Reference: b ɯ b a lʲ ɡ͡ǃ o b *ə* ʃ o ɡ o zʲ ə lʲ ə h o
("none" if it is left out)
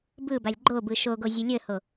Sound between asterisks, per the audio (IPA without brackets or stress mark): ɯ